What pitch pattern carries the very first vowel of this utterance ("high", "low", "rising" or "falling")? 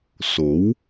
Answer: rising